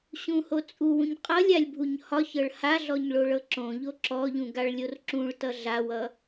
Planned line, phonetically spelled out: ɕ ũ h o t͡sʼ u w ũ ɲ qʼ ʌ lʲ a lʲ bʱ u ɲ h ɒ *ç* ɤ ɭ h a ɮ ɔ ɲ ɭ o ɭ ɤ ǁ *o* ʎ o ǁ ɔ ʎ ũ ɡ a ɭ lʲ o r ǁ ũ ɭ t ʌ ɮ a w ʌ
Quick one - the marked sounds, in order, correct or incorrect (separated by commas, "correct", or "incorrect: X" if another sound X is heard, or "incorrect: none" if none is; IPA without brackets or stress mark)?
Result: correct, incorrect: õ